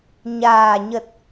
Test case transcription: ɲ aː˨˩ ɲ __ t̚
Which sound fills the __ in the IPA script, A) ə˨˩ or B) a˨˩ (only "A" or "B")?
A